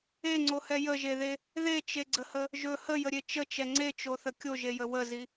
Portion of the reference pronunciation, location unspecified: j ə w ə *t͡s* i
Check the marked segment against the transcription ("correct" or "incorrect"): incorrect